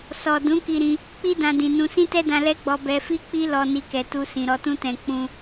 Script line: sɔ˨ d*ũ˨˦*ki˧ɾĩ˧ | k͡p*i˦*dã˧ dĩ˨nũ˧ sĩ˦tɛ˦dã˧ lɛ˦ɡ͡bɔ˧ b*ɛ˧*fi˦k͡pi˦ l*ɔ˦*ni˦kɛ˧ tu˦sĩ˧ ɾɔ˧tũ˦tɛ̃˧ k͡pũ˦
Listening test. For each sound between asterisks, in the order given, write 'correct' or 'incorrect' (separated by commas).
correct, correct, correct, correct